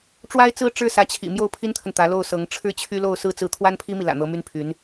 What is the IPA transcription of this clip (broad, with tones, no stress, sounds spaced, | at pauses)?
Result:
ʈ͡ʂ w a˥ ɪ̯ t͡s ɹ̩˥ ʈ͡ʂ ɻ̩˥˩ s ä˧˥ t͡ɕʰ ḭ˨˩ m j o˥˩ ʊ̯ pʰ i˥ n t̪ʰ ə˨ n t̪ ä˧˥ l o˥˩ ʊ̯ s ɤ˧˥ ŋ ʈ͡ʂʰ ɻ̩˥˩ t͡ɕʰ y˥ l o˥˧ ʊ̯ s ɹ̩˥˧ t͡s ɹ̩˥˩ t̪ʰ w a˥ n pʰ i˥ m i˨ l ä̰˨˩ n̪ ɤ˧˥ m y˥ n pʰ y˧˥ n